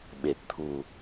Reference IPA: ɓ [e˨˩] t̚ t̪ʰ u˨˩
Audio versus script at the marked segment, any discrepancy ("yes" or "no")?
no